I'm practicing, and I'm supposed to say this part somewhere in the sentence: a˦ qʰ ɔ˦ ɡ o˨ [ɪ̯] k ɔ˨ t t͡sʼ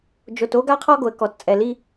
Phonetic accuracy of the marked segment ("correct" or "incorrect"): incorrect